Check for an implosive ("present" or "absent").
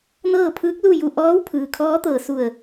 absent